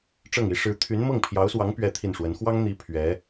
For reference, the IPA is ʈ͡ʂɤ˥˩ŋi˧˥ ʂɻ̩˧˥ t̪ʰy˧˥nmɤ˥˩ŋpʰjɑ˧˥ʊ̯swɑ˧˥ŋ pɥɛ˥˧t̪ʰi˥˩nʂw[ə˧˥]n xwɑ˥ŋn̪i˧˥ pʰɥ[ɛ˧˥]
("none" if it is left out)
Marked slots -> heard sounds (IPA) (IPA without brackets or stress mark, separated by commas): ə˧˥, ɛ˧˥